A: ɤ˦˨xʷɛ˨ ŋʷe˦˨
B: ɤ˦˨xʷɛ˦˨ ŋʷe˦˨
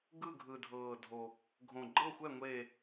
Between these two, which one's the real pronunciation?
B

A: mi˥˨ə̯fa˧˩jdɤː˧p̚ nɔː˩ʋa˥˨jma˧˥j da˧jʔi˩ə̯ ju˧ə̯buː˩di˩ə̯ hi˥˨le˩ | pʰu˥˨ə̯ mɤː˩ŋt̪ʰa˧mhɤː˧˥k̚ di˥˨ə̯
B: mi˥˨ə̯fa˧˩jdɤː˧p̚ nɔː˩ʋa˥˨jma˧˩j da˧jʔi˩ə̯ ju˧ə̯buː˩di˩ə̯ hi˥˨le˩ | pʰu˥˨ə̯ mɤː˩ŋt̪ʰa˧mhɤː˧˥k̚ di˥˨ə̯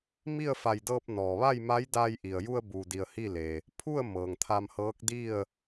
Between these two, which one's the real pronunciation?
A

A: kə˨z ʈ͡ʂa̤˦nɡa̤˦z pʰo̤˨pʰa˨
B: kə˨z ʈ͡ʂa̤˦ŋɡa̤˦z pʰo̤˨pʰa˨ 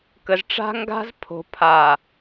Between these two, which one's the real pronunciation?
B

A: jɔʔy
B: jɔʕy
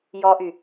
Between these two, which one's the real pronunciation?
A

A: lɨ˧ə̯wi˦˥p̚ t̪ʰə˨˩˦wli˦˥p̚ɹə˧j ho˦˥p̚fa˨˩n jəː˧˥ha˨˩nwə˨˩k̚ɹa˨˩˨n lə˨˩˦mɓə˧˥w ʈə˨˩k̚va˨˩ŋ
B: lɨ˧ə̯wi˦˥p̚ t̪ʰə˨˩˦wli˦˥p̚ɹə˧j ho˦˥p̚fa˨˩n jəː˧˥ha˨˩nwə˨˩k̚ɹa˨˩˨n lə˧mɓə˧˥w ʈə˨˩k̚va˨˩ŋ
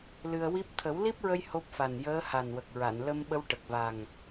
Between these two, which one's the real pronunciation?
B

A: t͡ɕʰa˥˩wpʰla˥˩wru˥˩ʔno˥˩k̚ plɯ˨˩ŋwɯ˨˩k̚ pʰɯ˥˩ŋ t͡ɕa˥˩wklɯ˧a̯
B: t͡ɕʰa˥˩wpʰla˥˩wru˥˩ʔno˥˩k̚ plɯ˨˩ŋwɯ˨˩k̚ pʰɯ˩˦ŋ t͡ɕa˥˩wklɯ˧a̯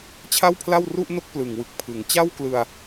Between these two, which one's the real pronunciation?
B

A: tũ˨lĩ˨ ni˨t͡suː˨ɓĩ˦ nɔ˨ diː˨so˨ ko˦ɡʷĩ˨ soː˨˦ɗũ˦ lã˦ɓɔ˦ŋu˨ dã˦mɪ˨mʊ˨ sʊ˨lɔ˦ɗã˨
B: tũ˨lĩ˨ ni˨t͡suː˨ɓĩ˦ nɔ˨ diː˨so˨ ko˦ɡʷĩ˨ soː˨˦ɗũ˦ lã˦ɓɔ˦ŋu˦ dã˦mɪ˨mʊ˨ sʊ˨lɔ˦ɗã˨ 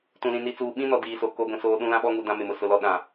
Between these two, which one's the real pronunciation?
A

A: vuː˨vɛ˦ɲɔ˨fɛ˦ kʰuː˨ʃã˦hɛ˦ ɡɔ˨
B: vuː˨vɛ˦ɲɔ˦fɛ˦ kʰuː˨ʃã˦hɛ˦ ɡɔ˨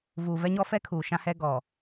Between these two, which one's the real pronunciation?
B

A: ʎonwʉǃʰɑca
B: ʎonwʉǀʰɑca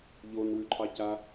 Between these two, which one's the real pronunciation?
A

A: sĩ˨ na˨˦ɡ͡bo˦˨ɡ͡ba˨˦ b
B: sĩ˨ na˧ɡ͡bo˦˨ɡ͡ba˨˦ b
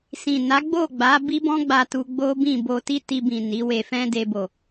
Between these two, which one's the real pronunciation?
A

